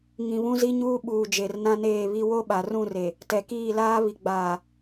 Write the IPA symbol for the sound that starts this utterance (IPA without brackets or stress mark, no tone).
ŋ